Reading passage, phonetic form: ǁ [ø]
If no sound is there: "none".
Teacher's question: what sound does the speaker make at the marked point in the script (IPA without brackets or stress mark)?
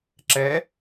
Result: ɛ